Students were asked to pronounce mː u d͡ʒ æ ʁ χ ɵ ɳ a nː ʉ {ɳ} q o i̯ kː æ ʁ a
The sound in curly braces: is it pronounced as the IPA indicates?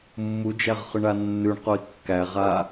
yes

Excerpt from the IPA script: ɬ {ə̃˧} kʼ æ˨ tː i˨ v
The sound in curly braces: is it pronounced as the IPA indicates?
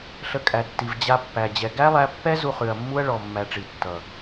no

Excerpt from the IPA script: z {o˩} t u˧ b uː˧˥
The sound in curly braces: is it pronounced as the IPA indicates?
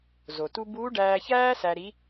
yes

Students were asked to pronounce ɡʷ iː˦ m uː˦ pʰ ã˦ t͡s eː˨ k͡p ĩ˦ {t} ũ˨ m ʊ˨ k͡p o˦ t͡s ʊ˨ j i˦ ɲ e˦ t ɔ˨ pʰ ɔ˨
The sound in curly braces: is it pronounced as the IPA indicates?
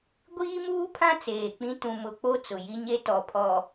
yes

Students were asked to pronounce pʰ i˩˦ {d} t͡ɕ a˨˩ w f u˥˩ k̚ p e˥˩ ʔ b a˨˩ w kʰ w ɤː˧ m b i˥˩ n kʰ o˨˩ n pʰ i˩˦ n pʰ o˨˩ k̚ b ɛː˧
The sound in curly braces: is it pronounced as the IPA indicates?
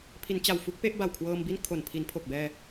no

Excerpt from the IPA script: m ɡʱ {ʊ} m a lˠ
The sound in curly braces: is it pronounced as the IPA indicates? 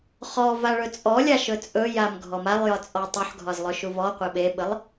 no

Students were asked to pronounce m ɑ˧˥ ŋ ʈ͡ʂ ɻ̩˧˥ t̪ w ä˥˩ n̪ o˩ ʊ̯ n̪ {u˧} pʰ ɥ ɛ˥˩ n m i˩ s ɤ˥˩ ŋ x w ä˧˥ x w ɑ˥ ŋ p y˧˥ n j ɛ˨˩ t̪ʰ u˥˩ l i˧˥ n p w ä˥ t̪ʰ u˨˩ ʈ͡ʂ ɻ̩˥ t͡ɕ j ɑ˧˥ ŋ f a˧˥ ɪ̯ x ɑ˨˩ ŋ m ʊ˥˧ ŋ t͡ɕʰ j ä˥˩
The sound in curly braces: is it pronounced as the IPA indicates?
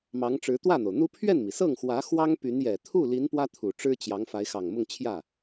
no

